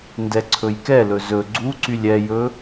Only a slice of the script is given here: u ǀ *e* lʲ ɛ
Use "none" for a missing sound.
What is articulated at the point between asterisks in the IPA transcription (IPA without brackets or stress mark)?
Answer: y